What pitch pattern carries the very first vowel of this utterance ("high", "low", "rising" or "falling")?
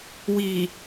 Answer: low